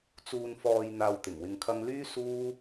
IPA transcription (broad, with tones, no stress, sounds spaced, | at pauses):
t͡s uː˨ n f ɔː˨ j n̪ aː˧ w t̪ ɪ˨˩ ŋ w ɪ˧ ŋ kʰ ɐ˥ ŋ l yː˥ s uː˥